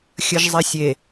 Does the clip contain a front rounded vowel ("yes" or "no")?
no